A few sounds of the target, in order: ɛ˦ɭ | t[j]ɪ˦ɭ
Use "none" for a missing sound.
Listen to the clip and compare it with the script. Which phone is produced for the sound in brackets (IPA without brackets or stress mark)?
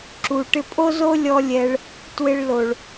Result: w